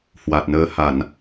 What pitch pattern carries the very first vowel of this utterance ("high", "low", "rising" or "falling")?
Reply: low